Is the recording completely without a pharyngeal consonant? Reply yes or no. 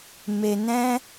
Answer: yes